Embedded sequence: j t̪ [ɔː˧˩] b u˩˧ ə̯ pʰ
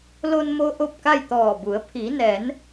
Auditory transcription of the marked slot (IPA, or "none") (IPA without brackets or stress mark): ɔː˧˩